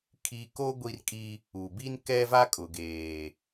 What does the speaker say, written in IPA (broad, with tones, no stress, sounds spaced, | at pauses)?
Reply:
kʰ i˦ k o˦ ɡʷ i˦ r kʼ i˦ | u˨ b i˦ n k ɛ˦ v a˦ kʼ ʊ˨ ɡ eː˨